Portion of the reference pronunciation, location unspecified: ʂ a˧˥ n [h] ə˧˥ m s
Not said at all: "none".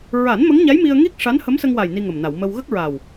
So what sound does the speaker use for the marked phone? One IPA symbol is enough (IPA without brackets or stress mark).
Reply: h